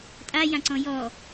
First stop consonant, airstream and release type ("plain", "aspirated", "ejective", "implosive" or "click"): ejective